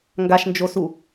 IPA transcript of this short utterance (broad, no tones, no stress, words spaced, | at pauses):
ŋɡaʃnd͡ʒosu